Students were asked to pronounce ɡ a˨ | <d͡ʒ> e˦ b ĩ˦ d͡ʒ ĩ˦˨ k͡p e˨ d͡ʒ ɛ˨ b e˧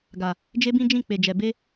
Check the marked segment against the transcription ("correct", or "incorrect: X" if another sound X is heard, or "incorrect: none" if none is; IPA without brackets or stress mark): correct